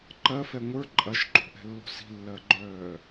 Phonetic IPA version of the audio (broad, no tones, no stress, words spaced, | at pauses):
ǃɜfɛ ŋʷə˞ ǃʼɐʃǃo̤ʔɛ̤lːo̤ si̤lːɜɡ͡ǃœː